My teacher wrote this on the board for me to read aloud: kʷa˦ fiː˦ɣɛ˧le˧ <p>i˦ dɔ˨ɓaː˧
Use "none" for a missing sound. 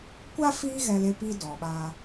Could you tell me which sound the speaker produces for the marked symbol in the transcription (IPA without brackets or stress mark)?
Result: p